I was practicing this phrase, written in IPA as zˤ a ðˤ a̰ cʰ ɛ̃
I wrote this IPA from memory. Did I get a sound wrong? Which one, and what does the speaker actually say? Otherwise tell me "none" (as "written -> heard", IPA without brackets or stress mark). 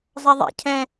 none